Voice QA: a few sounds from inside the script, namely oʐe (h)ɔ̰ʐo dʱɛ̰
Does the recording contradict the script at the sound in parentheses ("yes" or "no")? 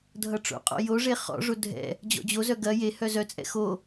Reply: yes